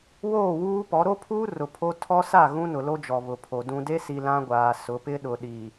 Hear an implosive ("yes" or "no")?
yes